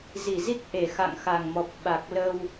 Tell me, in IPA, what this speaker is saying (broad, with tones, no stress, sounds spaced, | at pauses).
z i˧˩ z i˦˥ k̚ ʔ e˧˩ x a̰˧˨ ŋ x a˨˩ ŋ m ɔ˨˩ p̚ ɓ a˨˩ k̚ l ə˧ w